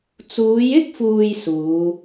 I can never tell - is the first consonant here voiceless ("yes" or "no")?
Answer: yes